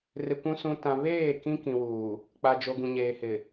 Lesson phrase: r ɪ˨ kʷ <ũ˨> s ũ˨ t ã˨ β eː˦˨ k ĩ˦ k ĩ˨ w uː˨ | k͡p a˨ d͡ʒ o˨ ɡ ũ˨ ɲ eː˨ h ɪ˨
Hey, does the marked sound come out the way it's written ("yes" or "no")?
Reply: yes